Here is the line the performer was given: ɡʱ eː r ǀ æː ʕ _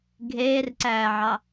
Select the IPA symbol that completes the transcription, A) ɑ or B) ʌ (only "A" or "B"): A